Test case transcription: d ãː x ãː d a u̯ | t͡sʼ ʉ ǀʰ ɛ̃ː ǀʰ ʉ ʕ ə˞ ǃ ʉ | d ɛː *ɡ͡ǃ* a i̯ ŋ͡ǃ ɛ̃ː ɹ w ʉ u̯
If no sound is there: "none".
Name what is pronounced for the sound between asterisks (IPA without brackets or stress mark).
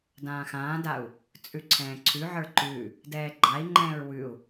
ɡ͡ǃ